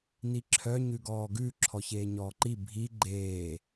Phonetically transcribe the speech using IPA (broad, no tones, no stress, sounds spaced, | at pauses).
n i ǁʰ œ ɲ ʉ ɡ ɔː ɡ ʉ ǁʰ ɔ ç eː ɲ ɔː ǃ i bʱ i ɡ͡ǃ eː